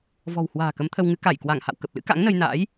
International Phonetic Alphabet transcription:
vɔ̤˨˩whwa̤ː˨˩ kə˨˦mt̪ʰə˧wŋɨ˨˦ ka˧˩j kwa˧˩ŋha̰˧˨w kə˨˩p̚lɨ̰˧˥ ka̰˧˥ŋnə˧jna̰ː˧˥j

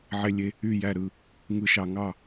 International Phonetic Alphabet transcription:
ʕe˧lʲe˧ | y˥˨jæ˥˨ ɾɯ˥˨ | ŋɯ˧ʃɑ˧ŋɑ˥˨

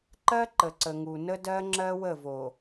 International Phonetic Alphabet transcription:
ǃɜ˦ ǃə˨ǀə˨ŋu˨ nə˦dɜ˦ŋ͡ǁɜ˦ wə˦˨vo˨

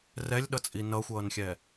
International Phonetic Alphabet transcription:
rɛlʲɗʌt͡sʼi nʌxʷʌːnxʲɛ

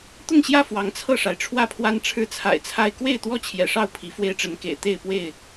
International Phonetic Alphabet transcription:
t̪ʊ˥˨ŋɕjä˥˨ fwɑ˨˦ŋt͡sʰɤ˥˨ʂa˩ɪ̯ ʈ͡ʂʰwä˥˨pʰwa˦n ʈ͡ʂʰɻ̩˦t͡sʰa̰˨˩ɪ̯t͡sʰa˦ɪ̯ kwe˥˨ɪ̯t̪wɔ˥˨ t͡ɕʰjɛ̰˨˩ʂɑ˥˨ʊ̯ pʰi˨˦fwe˦ɪ̯ʈ͡ʂə˨˦nkḛ˨˩ɪ̯ t̪e˥˨ɪ̯pwe˥˨ɪ̯

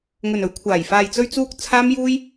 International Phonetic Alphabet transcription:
ŋɵ˨nɵ˨˥ɥkʷʰaː˨˩j faː˨jt͡sɵ˧ɥt͡suː˧k̚ t͡sʰaː˥mjuː˥j

